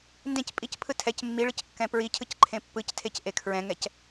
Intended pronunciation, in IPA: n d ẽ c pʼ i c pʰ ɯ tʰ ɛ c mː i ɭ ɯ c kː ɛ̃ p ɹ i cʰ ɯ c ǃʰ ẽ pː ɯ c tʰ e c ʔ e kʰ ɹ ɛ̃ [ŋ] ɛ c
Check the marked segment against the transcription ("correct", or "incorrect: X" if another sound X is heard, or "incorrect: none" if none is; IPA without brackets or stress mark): correct